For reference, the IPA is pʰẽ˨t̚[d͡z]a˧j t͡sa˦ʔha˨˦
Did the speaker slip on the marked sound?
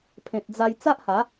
no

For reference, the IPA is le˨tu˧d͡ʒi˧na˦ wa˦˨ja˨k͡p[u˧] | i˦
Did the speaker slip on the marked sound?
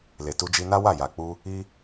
no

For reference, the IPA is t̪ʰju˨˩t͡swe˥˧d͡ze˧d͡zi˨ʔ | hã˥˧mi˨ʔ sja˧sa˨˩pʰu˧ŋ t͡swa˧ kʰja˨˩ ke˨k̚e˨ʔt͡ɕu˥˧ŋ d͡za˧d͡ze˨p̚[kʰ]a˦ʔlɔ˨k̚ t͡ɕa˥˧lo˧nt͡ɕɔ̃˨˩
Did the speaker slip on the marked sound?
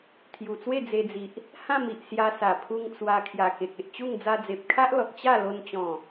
no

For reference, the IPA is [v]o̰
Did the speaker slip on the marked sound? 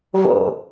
no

